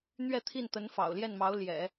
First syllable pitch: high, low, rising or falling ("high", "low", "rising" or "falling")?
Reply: falling